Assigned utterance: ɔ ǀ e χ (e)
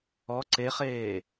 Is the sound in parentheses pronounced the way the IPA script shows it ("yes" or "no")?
no